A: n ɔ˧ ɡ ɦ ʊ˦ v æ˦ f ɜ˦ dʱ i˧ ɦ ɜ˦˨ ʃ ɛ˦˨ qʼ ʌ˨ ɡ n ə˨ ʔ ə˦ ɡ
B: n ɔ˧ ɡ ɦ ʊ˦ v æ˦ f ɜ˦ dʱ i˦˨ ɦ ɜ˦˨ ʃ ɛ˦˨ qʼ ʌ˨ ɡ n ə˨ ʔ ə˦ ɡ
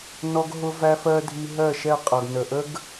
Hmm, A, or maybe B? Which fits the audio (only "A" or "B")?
A